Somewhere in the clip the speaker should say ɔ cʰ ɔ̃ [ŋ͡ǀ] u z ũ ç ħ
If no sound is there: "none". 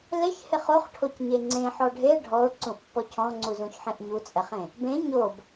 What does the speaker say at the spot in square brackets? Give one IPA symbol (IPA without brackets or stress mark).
ŋ͡ǀ